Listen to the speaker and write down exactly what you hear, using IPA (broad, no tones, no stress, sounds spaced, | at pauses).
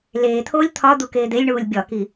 l eː t̪ʰ oː lʲ t̪ʰ ɒ d̪ u k eː d̪ e lʲ ɳ uː lʲ bʲ ɒ k i